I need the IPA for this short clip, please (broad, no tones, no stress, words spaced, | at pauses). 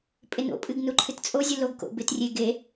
pʼɪno̰pʼɨɡ nuǃʰɨtt͡sʼozʲu loɡko̰ bɪtrʲe ɡe